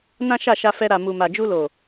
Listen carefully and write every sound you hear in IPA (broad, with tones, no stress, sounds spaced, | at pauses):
n ã˦ ʃ a˦˨ ʃ a˧ f ɛ˧ ɾ a˨ m u˨ m a˨ d͡ʒ u˧ l o˨